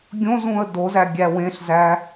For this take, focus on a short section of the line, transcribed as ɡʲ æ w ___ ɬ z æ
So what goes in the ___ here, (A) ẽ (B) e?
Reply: A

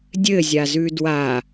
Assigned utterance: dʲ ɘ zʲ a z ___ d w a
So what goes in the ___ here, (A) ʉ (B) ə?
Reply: A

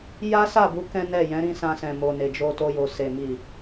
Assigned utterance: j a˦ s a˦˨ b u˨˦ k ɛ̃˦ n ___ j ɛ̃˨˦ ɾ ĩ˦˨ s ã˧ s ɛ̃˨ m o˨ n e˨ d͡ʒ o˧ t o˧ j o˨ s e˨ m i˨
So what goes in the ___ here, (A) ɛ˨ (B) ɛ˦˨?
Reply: B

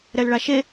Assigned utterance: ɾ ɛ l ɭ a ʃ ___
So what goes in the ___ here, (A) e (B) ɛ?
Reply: A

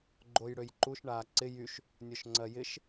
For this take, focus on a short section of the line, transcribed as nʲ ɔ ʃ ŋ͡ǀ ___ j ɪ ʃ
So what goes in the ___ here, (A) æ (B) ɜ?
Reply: B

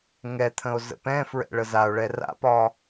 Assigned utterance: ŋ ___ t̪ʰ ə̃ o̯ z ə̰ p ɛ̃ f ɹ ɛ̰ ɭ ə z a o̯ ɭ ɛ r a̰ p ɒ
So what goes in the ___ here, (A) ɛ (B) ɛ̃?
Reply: A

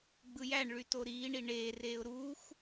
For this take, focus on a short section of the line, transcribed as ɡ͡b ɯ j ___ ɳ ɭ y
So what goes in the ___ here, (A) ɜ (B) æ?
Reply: B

